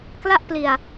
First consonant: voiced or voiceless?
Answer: voiceless